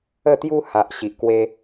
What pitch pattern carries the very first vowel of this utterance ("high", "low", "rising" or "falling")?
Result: falling